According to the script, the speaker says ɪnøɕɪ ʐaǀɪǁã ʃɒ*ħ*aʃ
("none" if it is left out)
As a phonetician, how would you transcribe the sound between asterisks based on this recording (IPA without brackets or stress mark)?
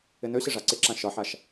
ħ